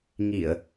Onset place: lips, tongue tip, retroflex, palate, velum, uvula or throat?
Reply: velum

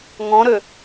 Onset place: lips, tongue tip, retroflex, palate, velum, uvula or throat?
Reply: velum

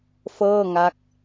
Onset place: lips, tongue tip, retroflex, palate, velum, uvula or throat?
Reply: lips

